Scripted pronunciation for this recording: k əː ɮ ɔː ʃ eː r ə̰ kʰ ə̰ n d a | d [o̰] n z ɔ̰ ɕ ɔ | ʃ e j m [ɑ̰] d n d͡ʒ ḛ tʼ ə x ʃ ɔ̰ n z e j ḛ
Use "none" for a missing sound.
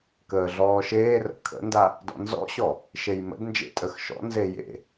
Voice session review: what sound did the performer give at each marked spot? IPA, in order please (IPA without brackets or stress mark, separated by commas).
ɔ̰, ə̰